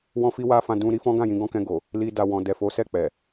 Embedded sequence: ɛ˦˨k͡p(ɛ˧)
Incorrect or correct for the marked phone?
incorrect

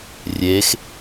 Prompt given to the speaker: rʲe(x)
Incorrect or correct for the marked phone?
correct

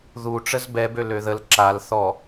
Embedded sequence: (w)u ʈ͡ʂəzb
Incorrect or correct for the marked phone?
incorrect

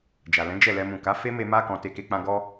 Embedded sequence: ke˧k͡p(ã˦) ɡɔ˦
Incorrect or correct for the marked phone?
incorrect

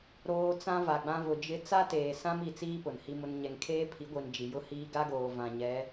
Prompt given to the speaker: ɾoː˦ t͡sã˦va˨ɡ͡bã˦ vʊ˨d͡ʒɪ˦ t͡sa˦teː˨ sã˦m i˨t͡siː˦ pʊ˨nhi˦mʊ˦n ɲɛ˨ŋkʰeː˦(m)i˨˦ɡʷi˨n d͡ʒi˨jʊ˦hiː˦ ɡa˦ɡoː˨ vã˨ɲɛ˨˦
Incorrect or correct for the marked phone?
incorrect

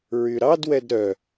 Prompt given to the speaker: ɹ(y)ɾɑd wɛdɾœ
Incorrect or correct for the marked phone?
correct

